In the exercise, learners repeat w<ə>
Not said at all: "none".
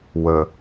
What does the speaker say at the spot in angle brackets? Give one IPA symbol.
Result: ə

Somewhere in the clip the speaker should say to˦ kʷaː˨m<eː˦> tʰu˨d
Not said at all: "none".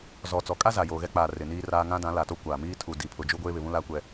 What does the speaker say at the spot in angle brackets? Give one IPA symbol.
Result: iː˦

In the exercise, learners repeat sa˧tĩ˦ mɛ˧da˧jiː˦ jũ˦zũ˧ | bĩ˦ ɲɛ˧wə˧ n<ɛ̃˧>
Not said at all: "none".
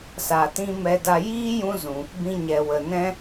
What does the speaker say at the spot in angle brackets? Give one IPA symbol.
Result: ɛ̃˦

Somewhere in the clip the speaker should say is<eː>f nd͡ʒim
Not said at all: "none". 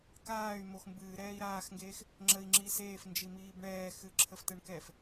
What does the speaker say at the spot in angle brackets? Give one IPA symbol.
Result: eː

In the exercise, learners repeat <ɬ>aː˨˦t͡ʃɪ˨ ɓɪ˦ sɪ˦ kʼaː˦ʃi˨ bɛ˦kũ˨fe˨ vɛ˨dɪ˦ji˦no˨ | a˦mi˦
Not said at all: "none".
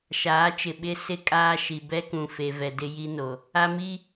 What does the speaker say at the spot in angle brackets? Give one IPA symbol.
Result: ʃ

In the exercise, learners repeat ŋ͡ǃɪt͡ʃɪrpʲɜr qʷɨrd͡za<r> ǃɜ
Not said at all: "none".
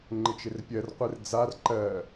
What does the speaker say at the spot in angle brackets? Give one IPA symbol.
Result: r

